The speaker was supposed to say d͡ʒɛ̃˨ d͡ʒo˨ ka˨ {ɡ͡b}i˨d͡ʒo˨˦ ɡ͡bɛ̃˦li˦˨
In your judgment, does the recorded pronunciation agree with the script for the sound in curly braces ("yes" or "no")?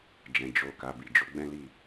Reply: no